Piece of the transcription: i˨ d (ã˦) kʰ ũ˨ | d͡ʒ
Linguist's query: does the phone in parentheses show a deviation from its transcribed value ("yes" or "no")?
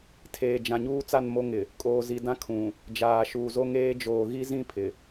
no